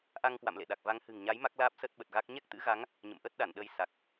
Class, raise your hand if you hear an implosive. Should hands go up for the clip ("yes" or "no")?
yes